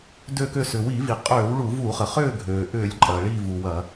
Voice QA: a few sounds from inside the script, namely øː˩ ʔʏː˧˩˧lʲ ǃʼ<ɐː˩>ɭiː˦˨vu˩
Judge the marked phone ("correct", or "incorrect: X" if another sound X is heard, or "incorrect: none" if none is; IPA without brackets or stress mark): correct